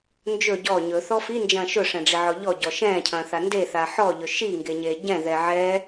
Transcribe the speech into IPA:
nd͡ʒɵ ɟɔ ɲɵθɔ find͡ʒɐ̃ː ʃɵʂɛ̃ɖ͡ʐiʕɔ ʎɔɟɔ ʃɛ̃ːcʰɐ̃ːθa ndeθa ħɔʎɵ ʃiŋɡeɲe ɟɛ̃ðɛ ʕɛ

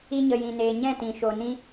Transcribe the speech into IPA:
i˧ɲə˨jĩ˨neː˨ ɲɛ̃˦˨tĩ˨ʃo˨ nĩ˦

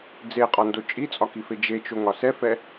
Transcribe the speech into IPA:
d͡zeqʼɒndo t͡ʃʼit͡sʼɒkife d͡ʒet͡ʃoŋɒ sɛfɛ

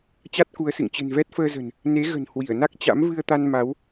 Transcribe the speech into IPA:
t͡ɕa˦˥t̚ku˨˦ə̯sɨ̰˧˨ŋ t͡ɕɨ̤˨˩nvɛ˦˥t̚fəː˧zə̤˨˩n | ne˨˦ɣə̤˨˩n hwi˧˩ə̯na˦˥k̚ t͡ɕa̰˧˥mvɨ˧ə̯t̪a˧nma˨˦w

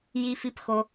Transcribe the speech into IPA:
ji˧fi˧pxo˧

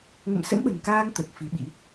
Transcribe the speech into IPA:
ŋə̰˧˨msə̰˧˥nɓə̤˨˩nkaː˧ŋ t̪ə˨˩t̚ fi˨˦ɓḭ˧˥

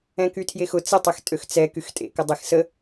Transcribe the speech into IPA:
ɛ̃kytʰjexʊ t͡sɪtˤextʼøx t͡sɛ kyxtʼḛkə dˤexsə

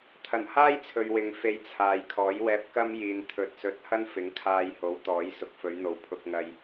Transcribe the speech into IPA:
t̪ʰɐ˨˩nhaː˥jt͡sʰɵ˨ɥ wɪ˨ŋfe˧jt͡sʰaː˨jkʰɔː˨˥j wɛː˧p̚kɐ˥m jiː˨n t̪ʰɵ˨t̚sɵ˨˥t̚hɐ˥n fɪ˨˥ŋkʰaː˧jho˨˥wt̪ɔː˨˥j sʊ˨k̚fɵ˨˧ɥn̪o˨w pʰʊ˧k̚ŋɐ˧j

